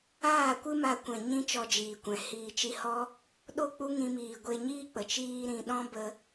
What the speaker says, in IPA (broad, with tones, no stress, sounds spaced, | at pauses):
aː˦˨ kʷ ɨ˦ m a˧ kʷ ɛ̃˨ ɲ ĩ˦ t͡ʃ ɔ˧ d͡ʒ iː˨ kʷ ɛ̃˨ h iː˨ t͡ʃ i˧ h ɔ˦ | ɗ o˦˨ k͡p u˦ ŋ ĩ˧ m iː˨ ɡʷ e˧ ɲ iː˦ k͡p ə˨ t͡ʃ iː˦ ɾ ĩ˧ ɗ ɔ̃˦ b ə˧